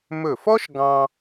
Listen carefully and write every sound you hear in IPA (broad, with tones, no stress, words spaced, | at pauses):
mɵ˧˩fɔ˥ʃɡɑ̃˧